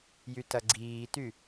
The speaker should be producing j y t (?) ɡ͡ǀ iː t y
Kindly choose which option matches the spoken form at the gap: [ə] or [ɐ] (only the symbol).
ɐ